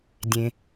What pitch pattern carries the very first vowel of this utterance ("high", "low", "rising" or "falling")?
low